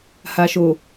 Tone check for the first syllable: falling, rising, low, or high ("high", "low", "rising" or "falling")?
low